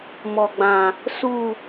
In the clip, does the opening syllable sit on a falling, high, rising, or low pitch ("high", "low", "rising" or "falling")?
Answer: low